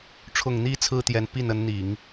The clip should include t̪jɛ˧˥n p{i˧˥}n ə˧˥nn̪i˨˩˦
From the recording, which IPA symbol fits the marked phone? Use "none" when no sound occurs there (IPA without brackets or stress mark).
i˥˩